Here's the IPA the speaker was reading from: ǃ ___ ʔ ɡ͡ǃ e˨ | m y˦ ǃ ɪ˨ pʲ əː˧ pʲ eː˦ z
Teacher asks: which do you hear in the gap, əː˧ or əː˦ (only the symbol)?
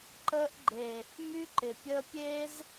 əː˧